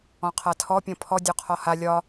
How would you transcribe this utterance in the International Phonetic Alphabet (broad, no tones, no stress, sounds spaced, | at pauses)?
ɔ̃ qʰ a tʰ ɔ pʲ ɔ̃ pʰ ɔ dʲ ɔ qʰ ɔ h a lʲ ɒ